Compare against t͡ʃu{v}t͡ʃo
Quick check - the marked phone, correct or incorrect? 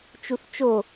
incorrect